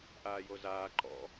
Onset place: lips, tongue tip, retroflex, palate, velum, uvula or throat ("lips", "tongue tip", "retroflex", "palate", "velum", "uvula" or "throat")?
throat